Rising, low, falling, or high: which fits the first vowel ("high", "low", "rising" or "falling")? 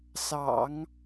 low